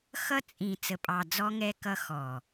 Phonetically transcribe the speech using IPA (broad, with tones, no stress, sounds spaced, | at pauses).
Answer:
x ʌ˦ t͡sʼ ĩ˨ t͡s ə˨ pʼ ɑ˨ d͡z ɔ˦ ŋ ɛ˦ k ʌ˦ x ɔ˨